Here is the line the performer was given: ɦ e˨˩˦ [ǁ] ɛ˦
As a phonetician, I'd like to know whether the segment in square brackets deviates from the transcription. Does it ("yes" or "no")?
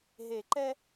yes